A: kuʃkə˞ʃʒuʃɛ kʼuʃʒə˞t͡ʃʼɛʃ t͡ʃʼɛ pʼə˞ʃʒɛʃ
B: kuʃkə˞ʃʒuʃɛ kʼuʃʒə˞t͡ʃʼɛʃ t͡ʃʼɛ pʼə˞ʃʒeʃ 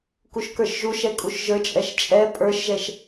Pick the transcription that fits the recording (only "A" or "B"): A